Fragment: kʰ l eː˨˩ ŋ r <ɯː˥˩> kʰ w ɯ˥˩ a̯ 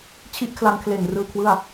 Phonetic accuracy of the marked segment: incorrect: ɯː˧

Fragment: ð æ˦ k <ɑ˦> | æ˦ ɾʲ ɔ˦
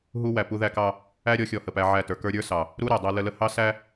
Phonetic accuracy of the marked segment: correct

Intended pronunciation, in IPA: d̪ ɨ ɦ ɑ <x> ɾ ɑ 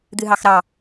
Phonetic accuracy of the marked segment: correct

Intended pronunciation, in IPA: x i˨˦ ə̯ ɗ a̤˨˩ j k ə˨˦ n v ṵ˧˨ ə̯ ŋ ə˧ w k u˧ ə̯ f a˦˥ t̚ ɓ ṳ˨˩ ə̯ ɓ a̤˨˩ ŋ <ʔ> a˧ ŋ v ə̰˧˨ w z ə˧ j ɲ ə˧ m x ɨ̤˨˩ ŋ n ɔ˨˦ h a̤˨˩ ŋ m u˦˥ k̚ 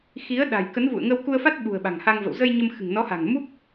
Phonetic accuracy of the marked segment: incorrect: h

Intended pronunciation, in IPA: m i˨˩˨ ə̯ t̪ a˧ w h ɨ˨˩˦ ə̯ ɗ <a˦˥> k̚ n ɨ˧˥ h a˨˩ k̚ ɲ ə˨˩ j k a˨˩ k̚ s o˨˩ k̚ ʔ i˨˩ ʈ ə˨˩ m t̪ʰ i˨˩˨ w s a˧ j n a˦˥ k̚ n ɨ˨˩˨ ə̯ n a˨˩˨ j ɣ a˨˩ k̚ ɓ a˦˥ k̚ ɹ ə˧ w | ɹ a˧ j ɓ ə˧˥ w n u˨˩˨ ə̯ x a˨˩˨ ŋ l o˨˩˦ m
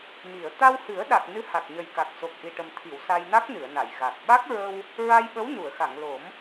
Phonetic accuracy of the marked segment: incorrect: a˨˩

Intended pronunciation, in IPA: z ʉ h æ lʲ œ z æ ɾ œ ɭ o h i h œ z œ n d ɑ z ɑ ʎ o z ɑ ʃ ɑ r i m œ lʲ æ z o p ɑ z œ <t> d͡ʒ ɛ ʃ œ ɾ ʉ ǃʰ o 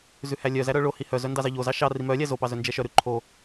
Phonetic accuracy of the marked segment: incorrect: n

